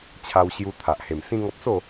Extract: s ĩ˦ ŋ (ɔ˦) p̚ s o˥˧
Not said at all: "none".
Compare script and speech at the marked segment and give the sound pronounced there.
ɔ˦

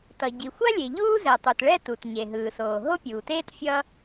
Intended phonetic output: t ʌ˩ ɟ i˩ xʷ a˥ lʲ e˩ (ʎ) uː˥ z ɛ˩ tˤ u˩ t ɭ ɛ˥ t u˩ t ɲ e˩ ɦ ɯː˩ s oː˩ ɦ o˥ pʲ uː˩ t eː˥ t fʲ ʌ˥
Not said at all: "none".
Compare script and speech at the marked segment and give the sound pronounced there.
ʎ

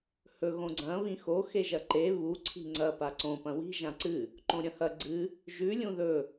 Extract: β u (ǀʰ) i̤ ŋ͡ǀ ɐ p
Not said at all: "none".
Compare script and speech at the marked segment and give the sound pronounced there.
ǀʰ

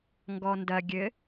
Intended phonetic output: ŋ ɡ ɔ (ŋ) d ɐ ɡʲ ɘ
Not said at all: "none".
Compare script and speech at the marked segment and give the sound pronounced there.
n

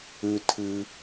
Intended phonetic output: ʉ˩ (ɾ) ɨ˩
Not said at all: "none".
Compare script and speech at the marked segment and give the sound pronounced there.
tʰ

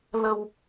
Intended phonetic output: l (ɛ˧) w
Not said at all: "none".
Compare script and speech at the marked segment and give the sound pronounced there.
ə˧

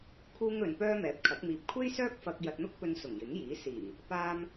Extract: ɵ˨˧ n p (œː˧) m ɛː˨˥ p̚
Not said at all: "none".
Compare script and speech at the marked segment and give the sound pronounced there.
œː˥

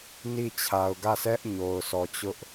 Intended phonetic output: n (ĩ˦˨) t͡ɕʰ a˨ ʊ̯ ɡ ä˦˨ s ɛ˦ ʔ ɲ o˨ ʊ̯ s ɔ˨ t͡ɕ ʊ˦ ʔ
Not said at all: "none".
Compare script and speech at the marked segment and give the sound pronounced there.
i˦˨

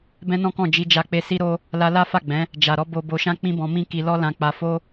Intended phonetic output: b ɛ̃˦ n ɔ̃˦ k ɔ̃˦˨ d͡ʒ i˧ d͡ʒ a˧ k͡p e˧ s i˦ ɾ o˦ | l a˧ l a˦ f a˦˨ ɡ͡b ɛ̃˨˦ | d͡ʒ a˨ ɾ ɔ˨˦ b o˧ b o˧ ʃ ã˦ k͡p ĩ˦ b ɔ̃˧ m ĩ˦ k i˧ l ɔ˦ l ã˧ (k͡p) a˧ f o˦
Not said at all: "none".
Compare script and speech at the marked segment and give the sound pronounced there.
k͡p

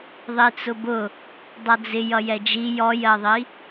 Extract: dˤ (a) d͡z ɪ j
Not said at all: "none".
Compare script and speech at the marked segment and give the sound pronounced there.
ʌ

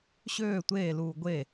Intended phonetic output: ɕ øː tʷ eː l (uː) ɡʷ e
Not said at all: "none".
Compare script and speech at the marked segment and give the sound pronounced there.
uː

